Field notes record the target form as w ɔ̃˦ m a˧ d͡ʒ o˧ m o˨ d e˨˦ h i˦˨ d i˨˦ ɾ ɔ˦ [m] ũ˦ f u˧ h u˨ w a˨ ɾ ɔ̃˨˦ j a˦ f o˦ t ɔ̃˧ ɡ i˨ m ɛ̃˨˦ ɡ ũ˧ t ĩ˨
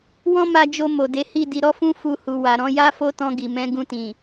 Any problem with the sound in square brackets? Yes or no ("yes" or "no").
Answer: yes